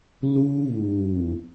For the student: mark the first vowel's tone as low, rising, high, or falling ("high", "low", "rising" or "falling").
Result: high